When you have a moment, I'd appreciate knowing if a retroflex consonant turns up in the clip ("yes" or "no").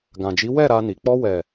no